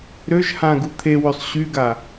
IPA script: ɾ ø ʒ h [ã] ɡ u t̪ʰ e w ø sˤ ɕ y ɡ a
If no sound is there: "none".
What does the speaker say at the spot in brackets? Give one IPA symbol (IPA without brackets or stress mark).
ã